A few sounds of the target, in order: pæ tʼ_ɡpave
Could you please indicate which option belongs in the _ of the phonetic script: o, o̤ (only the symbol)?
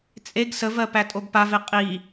o